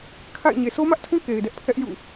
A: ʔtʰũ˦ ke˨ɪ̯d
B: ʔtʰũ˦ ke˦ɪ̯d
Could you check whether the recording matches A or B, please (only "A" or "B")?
A